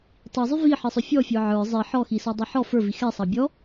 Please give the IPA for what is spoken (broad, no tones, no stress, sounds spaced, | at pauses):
tˤ i zˤ y v i ħ i sˤ ʏ fʲ ɔ fʲ ə˞ ʕ ə˞ zˤ i ħ ɔ x i s ɔ dˤ i ħ ɔ f ə˞ v i x ɛ sˤ ɑ bʲ ɔ